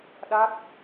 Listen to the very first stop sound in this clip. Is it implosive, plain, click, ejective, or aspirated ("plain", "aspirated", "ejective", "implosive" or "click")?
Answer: implosive